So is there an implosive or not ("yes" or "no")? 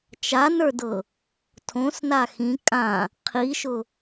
no